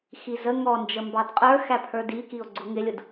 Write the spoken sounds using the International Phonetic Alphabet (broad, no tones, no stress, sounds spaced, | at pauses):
x i z ə ŋ ɔ n d͡ʒ ə m b ɑ d qʼ ə˞ x æ pʰ ə˞ d i k i o̯ ɡ͡ǀ ʊ ŋ ɪ lʲ ʊ d